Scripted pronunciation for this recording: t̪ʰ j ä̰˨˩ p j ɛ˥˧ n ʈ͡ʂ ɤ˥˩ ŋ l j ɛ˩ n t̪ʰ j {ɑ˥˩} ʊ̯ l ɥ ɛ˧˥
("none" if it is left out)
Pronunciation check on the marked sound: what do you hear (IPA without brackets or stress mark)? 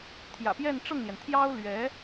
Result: ɑ˥